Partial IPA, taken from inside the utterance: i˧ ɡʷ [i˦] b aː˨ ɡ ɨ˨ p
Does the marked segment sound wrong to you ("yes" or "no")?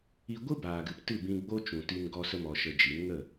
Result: yes